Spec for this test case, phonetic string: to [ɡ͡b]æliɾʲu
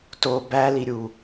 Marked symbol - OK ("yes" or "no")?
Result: no